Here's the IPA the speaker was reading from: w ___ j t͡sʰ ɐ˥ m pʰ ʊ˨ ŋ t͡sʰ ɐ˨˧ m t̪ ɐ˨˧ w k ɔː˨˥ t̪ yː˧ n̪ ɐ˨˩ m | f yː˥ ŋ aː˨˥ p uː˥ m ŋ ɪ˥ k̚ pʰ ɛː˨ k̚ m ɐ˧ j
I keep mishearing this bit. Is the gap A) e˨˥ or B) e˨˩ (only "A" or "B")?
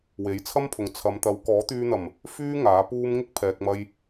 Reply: A